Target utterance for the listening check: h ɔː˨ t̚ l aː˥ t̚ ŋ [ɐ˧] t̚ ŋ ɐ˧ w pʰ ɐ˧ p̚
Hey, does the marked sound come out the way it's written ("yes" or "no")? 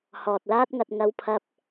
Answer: yes